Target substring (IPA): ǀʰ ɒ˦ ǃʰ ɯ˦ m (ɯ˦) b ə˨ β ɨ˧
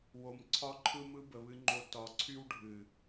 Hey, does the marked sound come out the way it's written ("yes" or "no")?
yes